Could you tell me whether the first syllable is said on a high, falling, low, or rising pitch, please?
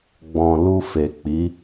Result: low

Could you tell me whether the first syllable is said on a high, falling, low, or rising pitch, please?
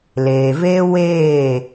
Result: low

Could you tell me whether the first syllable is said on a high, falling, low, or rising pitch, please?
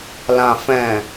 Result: low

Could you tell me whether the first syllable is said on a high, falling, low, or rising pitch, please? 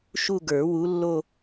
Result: falling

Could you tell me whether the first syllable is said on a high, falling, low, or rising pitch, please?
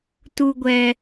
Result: high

